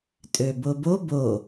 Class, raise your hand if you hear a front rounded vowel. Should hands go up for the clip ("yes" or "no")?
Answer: yes